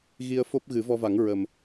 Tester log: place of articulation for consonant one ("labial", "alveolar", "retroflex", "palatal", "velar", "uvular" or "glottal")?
velar